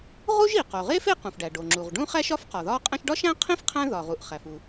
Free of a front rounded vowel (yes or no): yes